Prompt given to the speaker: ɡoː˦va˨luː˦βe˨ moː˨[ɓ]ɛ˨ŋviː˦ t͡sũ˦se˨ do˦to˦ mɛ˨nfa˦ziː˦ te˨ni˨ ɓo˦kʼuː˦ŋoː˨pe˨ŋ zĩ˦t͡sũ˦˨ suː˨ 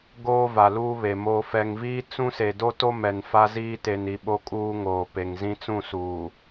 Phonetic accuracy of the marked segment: incorrect: f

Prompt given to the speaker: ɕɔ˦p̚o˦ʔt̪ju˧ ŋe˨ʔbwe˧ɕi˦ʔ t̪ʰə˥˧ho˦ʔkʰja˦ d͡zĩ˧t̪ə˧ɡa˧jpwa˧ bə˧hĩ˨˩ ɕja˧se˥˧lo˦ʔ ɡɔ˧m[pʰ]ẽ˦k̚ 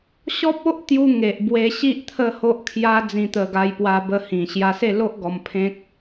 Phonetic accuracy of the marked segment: correct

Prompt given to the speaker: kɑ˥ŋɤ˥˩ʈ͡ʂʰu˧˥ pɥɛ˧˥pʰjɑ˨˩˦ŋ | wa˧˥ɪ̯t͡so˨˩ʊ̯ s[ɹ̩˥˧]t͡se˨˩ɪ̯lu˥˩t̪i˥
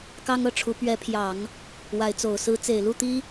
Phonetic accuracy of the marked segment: incorrect: ɹ̩˧˥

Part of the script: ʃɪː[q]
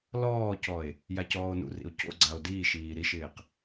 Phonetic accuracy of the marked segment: correct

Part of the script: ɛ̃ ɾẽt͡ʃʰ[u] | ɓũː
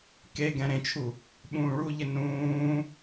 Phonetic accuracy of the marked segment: correct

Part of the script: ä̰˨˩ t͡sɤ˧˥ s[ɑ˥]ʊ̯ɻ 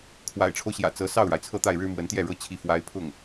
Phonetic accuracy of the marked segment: incorrect: ɑ˥˩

